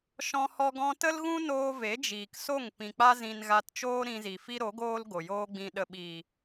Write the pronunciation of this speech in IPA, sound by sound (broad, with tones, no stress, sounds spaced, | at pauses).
ʃ ɔ̃˦ h ɔ˦ ɡ ɔ̃˦ t ə˦ l ɣ ũ˦ n oː˧ v e˨˦ d͡ʒ iː˨ k s o˦˨ ŋ p ĩ˨ k͡p a˦ z ĩ˧ n ɣ a˧ t t͡ʃ oː˦ ɾ ĩ˧ z i˨ f i˦ ɾ o˨˦ ɡ oː˦ l ɡ o˨ j oː˦ ɡ͡b ĩ˧ ɗ ə˨ ɓ iː˨